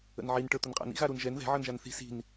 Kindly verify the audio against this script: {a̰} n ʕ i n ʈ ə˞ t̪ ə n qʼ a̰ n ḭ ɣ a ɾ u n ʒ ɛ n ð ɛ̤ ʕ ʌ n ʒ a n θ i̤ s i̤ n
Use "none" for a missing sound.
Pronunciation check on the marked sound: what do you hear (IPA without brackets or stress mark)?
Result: ə̰